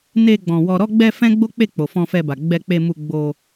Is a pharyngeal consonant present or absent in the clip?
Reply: absent